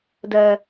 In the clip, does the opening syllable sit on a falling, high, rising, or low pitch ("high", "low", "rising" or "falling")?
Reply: high